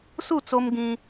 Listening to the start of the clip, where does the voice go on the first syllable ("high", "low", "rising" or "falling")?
falling